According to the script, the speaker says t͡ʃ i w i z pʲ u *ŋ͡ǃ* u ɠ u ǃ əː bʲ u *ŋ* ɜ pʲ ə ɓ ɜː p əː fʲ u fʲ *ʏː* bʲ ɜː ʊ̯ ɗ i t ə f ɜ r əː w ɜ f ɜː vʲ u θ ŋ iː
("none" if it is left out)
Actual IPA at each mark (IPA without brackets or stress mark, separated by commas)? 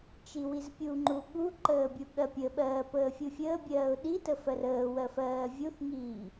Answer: ŋ͡ǃ, ɠ, əː